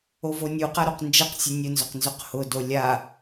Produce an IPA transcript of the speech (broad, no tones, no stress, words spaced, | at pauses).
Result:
ovonʲuqa ɾoqnd͡ʒɛqsʲʊ nʲʊnzʊq nzʊqhʊdo lʲa